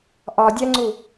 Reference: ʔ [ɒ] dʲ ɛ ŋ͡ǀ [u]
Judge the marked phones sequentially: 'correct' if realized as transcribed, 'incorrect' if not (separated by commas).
correct, correct